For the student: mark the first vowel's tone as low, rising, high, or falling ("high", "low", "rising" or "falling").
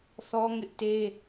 high